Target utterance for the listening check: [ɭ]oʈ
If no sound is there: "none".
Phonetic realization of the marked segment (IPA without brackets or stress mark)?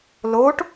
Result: l